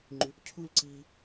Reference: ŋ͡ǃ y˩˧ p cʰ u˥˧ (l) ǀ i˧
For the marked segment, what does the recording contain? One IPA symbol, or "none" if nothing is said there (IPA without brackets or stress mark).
l